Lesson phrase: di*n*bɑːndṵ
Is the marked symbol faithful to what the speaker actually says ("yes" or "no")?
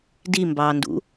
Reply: no